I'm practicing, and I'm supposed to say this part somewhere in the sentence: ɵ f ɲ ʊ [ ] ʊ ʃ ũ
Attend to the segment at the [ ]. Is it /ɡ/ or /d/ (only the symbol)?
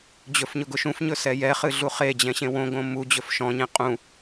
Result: ɡ